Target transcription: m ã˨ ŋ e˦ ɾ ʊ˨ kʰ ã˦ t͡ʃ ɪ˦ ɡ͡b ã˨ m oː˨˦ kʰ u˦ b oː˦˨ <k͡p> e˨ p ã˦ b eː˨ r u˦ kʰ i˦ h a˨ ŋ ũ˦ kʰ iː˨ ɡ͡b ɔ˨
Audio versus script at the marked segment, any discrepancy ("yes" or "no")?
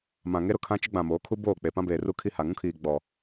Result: no